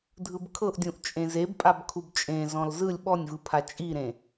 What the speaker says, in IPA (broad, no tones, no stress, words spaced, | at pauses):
dʱɯbkʰɤʔdʲũʔ t͡ʃʼẽzebpʼab kʰubt͡ʃʼẽ zɔ̃lzɯlʲ ɓɔnʲvɯpʰa t͡ʃʼiɾẽ